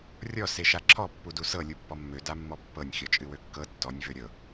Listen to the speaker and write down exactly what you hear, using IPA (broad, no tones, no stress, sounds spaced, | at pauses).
rʲ ɔ s e ʃ a ǁʰ ɔ pː u d u s ɤ lʲ u pː ɔ mː ø d a mː ɔ pː ɤ nʲ xʲ ɔ t͡ʃʼ ɨ w ø kː ɤ tː ɔ nʲ v ø ɾʲ ɤ